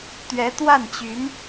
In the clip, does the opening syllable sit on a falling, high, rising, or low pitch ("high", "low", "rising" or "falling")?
rising